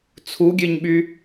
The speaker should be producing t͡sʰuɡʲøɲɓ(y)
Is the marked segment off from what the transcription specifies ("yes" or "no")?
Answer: no